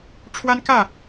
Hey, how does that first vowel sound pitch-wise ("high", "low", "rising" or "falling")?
high